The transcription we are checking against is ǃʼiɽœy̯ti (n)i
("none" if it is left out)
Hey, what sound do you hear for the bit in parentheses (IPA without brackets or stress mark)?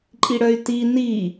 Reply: n